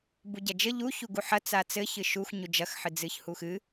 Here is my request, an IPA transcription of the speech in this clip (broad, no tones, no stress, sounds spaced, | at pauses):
b u ɟ ɐ d͡ʒ ɘ ʎ u ç u ɡ u ħ ɐ t͡s a t͡s ɘ ç ɨ ʃ u x ɲ u d͡ʒ ɐ x ħ ɨ d͡z ɨ ç h u x ɨ